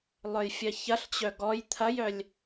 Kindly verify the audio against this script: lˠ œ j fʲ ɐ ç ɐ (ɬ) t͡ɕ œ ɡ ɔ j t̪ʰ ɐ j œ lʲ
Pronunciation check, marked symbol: correct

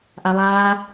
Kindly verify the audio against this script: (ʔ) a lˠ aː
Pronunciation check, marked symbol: correct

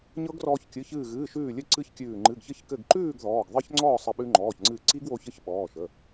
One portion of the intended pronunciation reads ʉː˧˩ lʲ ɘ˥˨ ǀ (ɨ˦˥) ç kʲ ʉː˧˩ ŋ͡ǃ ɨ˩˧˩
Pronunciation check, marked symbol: correct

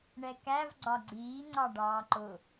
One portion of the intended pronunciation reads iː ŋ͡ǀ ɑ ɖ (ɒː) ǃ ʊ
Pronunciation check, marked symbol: incorrect: ɑː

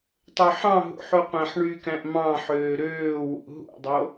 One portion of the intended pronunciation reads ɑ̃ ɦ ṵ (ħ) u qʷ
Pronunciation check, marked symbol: correct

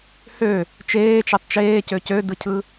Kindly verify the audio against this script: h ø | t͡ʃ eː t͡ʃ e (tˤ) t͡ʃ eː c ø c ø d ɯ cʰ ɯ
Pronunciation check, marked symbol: correct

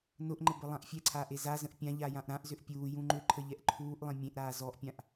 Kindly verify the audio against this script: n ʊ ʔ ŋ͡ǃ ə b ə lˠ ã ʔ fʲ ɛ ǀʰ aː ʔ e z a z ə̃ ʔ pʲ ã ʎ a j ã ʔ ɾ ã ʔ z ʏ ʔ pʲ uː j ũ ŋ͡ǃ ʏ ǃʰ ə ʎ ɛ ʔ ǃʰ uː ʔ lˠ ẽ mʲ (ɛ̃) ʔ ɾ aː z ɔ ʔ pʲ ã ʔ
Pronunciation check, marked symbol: incorrect: ẽ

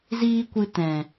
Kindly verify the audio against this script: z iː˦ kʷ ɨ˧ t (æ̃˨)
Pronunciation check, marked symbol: incorrect: ɛ̃˨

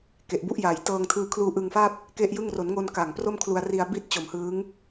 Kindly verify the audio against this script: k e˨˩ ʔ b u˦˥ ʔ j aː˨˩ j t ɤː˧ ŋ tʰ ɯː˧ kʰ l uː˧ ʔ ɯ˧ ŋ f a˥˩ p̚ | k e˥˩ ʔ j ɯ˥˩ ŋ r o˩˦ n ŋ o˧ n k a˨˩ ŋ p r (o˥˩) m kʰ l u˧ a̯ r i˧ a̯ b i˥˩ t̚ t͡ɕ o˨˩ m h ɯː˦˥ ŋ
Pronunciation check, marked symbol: correct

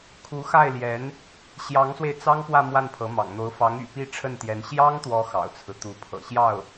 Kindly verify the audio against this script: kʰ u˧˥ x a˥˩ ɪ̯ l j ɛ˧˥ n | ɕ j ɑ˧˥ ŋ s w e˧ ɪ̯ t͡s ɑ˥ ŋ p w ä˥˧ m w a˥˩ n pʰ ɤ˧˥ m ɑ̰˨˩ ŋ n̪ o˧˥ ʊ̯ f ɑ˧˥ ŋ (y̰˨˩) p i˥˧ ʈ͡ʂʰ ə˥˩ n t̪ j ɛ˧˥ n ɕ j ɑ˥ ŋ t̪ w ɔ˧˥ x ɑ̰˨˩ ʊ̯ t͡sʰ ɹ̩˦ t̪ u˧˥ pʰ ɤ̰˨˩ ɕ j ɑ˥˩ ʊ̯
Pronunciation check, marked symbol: correct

